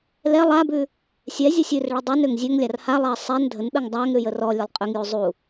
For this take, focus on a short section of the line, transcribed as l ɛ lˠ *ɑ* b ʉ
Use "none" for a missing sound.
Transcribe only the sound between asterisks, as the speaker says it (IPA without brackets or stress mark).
a